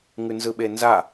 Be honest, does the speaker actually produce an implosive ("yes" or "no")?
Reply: yes